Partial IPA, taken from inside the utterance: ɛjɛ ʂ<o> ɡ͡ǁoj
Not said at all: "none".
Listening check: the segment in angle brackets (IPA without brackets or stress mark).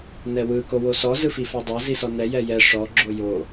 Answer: ɔ